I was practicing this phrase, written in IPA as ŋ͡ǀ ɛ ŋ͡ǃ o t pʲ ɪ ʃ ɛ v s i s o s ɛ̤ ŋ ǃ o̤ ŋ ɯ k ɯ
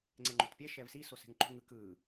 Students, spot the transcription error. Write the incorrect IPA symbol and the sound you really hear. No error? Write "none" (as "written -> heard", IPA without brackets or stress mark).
ɪ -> ɛ